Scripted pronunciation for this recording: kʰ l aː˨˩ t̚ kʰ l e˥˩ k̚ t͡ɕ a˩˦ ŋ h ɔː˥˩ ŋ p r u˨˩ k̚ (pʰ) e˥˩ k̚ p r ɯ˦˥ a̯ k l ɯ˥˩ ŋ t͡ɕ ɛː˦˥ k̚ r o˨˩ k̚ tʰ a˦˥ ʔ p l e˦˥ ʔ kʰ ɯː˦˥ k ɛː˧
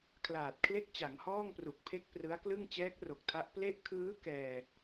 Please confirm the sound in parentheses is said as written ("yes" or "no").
yes